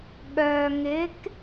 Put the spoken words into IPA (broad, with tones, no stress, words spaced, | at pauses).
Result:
ɠœː˨ŋɪ˨˦k